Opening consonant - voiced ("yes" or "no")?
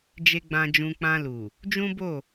yes